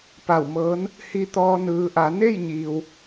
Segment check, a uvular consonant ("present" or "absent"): absent